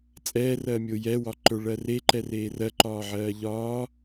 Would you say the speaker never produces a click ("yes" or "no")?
no